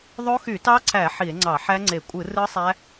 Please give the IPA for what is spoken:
ðˤo˦˥xy˧˩˧tɑ˦˥ǀʰæ˧˩˧ ħi˧˩˧e̯ŋ͡ǀɑ˧˩˧ ħæ˦˥ŋ͡ǀe˧˩˧ kʷʼɯ˧˩˧ rɯ˦˥sˤæ˦˥

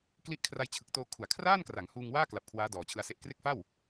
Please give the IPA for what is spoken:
kli˦˥ʔ kʰra˧jt͡ɕʰɯ˨˩k̚toː˧ kʰu˩˦a̯kʰraː˥˩nkra˩˦ŋhuː˧ŋ waː˥˩kla˨˩p̚ kʰwaː˦˥dɔː˨˩t͡ɕʰɯ˧a̯se˦˥ʔ kre˦˥k̚fa˥˩w

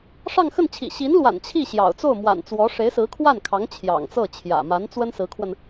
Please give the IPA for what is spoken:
ʂɑ˥˧ŋxə˥˩nt͡ɕʰḭ˨˩ ɕi˧˥nlwa̰˨˩n t͡ɕʰi˥˩ ɕjɑ̰˨˩ʊ̯ t͡so˥˩ʊ̯mwa̰˨˩n t͡swɔ˧˥ ʂe˧˥ɪ̯sɹ̩˧˥kʰwa˥˩nkʰɑ˧˥ŋ t͡ɕʰjɑ̰˨˩ŋt͡sɤ˥˩ t͡ɕʰjä̰˨˩ ma˧˥nt͡swə˥n sɹ̩˧˥kʰwə˧n

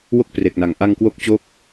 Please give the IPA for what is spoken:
wo˥˩k̚ pre˨˩k̚na˨˩ŋ ʔa˧ŋkwo˦˥k̚ t͡ɕo˦˥k̚

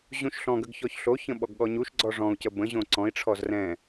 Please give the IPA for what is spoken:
ʑũʃɬɔ̃ɡəɡ çɔçɬoçə̃ ɓɔɡɠɔɲuʃɡ͡ǀɔ ʐɔ̃u̯cə bə̃ ʑõǀɔ̃i̯ʈ͡ʂʰɔz rɛ̃

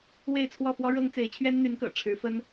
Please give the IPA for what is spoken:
we˥˧ɪ̯t͡sʰwɔ˥˩fwɔ˥ ɻɤ˥ŋ t͡se˧˥ɪ̯t͡ɕʰɥɛ˥nn̪y˧˥nkɤ̰˨˩ ʈ͡ʂʰɻ̩˧˥fə˥n

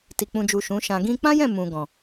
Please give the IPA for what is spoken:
ti˨k͡pũ˨d͡ʒu˨ ʃũ˨˦ʃã˧ ɡĩ˧k͡pã˦jɛ̃˦˨ mũ˨ɡɔ̃˨

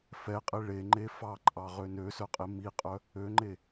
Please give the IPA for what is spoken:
fɛqʼe ɭeŋ͡ǃe fɑǃʼɑʁø nøsœqʼe miqʼœ | øŋ͡ǃe

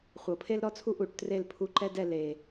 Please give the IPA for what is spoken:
χʷɤ˨˩˦pʰe˥lɾɔ˥t͡sʰu˥ ʔu˧˩ʈ tre˥˨lpʰu˧˥˧ǃɛ˥dɛ˥˨ le˩

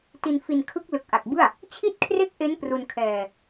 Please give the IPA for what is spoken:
ti˧nfi˧nkʰɯ˦˥k̚ lɯ˨˩k̚ʔa˨˩k̚bɯ˥˩a̯ | t͡ɕʰi˥˩t̚kʰre˥˩k̚ʔe˦˥n pru˧nkʰɛː˧

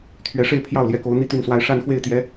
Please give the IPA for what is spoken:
t̪ʰɥɛ˧˥ʂe˥˧ɪ̯pʰjɑ˥˩ʊ̯ljɛ˧˥ ko˧˥ʊ̯ n̪i˥˧t̪y˥˩nswa˥ɪ̯ ʂa˥˧n xwe˥˩ɪ̯t̪jɛ˧˥

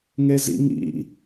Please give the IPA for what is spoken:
ŋezḭŋḭ

